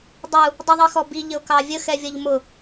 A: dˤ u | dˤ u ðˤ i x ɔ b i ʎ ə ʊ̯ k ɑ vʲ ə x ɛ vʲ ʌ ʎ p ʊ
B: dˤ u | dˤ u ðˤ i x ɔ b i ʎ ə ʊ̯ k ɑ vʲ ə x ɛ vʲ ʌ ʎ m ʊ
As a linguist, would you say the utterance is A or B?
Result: B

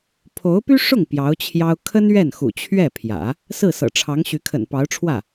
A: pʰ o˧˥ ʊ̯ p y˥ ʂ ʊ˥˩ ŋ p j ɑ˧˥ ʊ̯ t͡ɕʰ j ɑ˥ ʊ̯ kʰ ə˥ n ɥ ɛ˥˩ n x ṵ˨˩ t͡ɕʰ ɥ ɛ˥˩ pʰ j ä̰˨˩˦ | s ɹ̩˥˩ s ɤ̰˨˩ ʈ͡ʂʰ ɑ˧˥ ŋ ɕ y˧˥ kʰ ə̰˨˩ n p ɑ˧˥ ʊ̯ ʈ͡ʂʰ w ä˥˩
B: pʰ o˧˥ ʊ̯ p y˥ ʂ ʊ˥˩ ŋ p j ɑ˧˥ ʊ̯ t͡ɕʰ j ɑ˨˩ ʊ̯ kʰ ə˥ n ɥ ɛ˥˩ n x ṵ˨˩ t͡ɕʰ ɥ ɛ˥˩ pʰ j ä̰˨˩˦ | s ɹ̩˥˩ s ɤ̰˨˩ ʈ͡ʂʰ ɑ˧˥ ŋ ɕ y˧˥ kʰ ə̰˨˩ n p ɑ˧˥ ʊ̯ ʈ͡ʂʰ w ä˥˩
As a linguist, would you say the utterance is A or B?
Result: A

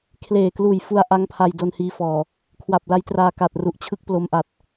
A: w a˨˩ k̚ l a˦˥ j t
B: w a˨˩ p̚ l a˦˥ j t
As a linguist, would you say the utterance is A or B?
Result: B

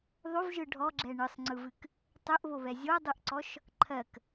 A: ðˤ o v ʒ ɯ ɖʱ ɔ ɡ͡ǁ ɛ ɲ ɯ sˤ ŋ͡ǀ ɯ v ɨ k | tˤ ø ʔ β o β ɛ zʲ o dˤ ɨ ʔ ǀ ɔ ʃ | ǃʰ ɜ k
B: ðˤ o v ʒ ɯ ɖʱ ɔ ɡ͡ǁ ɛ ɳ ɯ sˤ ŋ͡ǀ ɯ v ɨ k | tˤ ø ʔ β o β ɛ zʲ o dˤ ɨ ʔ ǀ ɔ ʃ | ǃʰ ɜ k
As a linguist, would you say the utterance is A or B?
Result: B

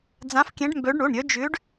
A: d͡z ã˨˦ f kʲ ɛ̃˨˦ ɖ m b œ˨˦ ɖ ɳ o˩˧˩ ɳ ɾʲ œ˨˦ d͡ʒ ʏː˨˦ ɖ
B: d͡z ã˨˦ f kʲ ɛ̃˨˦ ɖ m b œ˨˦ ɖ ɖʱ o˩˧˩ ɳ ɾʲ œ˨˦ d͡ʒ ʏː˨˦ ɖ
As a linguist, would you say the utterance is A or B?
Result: A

